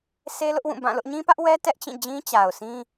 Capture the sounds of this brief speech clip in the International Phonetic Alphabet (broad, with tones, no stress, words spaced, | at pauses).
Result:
se˦lʊ˦ʔwũ˦˨ bã˦˨lʊ˦ʔ ɲĩ˦pä˦ʔwɛ˦ tɛ˦ʔt͡ɕĩ˦˨d͡ʑĩ˦ t͡ɕa˨ʊ̯sĩ˦